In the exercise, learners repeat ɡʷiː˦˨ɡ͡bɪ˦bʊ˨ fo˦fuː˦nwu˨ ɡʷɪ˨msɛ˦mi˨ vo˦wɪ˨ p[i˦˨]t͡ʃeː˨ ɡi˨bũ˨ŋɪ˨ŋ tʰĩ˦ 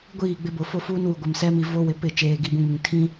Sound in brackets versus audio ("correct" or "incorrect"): incorrect